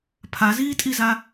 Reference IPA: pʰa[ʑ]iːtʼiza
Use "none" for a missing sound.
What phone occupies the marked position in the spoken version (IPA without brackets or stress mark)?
z